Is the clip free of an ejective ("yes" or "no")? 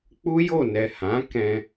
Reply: yes